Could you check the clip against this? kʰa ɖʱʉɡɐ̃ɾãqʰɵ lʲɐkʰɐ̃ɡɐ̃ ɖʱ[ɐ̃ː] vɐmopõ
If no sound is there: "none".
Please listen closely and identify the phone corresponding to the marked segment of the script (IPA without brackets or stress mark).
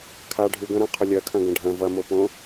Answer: ɐ̃